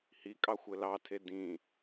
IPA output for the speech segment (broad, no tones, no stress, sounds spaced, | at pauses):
h i kʼ ɑ xʷ ɘ l ɑ tʰ e d ĩ